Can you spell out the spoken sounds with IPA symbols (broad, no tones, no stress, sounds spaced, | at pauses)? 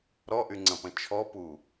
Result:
ɾ ɔ ʔ y ŋ͡ǀ ɐ̃ p ɐ̃ t͡ʃʰ ɔ p u